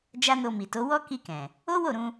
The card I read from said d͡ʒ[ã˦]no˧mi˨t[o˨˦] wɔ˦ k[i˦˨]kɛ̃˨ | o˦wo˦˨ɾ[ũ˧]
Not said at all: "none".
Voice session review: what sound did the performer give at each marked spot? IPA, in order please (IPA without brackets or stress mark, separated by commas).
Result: a˦, o˨˦, i˧, ũ˧